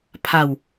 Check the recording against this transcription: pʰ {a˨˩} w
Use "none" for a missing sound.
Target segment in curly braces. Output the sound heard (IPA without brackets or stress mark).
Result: a˧